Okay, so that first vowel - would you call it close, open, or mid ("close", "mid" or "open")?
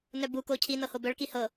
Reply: mid